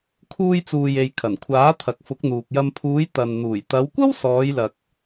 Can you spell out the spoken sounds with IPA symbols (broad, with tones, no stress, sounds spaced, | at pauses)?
kʰ uː˧ j t͡s uː˨ j e˨ j kʰ ɐ˨˩ n kʷʰ aː˨˥ t̪ʰ ɐ˨ k̚ f ʊ˨˥ k̚ n̪ uː˨ k̚ j ɐ˧ m pʰ uː˨˧ j t̪ ɐ˨ n n̪ uː˨˩ j t̪ ɐ˨˧ w kʷ ɐ˥ w s ɔː˨˧ j l ɐ˨ k̚